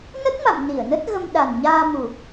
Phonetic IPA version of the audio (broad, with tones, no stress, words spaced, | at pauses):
nə˦˥t̚ma̰˧˨m ni˧˩ə̯nə˦˥t̚ɣə˧m ɗa˨˩nɲaː˧mu˨˩